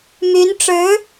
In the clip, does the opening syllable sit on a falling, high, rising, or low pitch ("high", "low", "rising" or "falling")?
rising